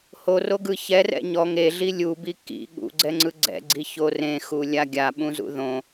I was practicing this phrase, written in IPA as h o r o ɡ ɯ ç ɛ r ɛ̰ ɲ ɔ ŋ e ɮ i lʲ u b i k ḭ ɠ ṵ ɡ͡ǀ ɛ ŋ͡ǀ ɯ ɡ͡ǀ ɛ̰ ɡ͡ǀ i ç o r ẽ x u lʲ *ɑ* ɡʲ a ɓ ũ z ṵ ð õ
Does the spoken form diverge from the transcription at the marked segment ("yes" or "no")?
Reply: yes